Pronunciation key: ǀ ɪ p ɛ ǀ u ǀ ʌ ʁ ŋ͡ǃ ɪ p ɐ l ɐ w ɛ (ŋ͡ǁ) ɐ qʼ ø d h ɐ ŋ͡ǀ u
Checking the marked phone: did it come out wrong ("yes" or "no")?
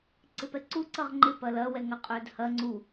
yes